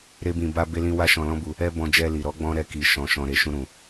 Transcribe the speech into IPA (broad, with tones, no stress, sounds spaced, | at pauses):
ɾ e˦ b ĩ˧ b a˦ b e˦ l ĩ˦ w a˦ ʃ ɔ̃˧ l ɔ̃˦ b u˧ | ɛ˦ b ɔ̃˧ d͡ʒ ɛ˧ l i˨ ɾ ɔ˨˦ ɡ͡b ɔ̃˦ ɾ ɛ˧ k i˨ ʃ ɔ̃˨ ʃ ɔ̃˨ ɾ e˨ ʃ ũ˧ ɾ ũ˨